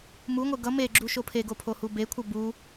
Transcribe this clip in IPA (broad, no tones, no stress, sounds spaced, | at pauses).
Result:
m u ŋʷ e ɡ ʌ m e ɡ͡ǁ u ʃ o pʰ e ɡ o pʰ o h u b e kʷʰ ʌ b u